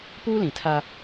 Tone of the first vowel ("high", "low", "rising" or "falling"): high